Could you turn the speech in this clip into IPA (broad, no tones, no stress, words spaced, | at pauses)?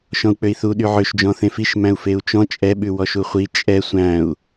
ʃɔ̃u̯k͡pøi̯θu ɗyʕøʃd͡ʒɔ̃ θẽfiʃ mæ̃u̯feu̯t͡ʃɔ̃ t͡ʃʼɛɓʉ wɔʃuχʷi t͡ʃʼɛ sʷæ̃u̯